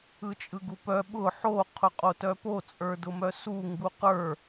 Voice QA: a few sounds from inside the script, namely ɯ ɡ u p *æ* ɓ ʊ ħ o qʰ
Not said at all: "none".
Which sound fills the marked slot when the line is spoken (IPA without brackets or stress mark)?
œ